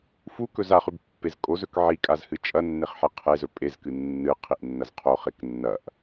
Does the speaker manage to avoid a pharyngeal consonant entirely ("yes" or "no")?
no